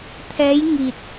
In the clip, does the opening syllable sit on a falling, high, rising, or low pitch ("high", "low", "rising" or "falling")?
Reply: rising